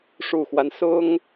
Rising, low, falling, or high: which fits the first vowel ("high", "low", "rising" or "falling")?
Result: low